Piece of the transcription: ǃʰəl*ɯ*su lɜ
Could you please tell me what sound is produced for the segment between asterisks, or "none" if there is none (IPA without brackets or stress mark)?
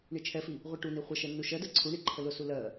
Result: ʊ